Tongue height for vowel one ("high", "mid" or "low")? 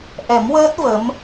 mid